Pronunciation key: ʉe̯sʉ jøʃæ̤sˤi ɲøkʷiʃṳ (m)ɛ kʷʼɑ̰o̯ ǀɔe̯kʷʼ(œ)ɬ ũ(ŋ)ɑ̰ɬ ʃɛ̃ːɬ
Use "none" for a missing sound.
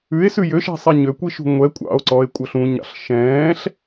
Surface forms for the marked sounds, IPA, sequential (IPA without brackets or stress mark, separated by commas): ŋʷ, œ, ɲ